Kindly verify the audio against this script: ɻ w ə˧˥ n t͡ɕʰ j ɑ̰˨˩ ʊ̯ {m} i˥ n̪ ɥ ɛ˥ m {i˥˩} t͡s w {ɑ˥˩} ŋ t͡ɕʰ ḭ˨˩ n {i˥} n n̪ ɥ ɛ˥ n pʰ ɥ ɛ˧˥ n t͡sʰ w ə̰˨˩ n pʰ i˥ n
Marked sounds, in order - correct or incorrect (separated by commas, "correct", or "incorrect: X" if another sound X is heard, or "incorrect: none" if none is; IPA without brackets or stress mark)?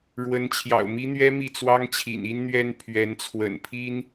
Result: correct, correct, incorrect: ɑ˥, correct